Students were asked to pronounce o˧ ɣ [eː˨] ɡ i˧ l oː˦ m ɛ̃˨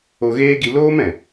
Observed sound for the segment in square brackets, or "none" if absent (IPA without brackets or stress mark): eː˦